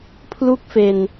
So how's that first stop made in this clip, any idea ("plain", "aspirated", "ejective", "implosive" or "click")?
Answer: aspirated